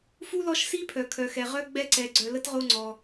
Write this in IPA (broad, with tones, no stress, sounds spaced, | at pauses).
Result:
f u˥ l ɔ˦ ʃ s i˥ pʰ œ˩ kʰ œ˩ x ɛ˩ ʁ œ˥ ɡ͡b ɛ˦ ǀ ɛ˩ ɡ͡ǀ œ˨ l ə˥ t ʁ o˦ ŋ͡ǀ ɔ˩